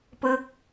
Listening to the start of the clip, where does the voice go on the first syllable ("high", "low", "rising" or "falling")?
falling